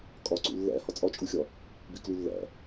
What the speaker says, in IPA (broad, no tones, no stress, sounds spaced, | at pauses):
kʼ ɒ ǀ ṵ lː æ̰ h ɒ t͡sʼ ɒ t͡ʃʼ u xʲ ɒ | b i k l u lː æ̰